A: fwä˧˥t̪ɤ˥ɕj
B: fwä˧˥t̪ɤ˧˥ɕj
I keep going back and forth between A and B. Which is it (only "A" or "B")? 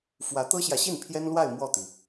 A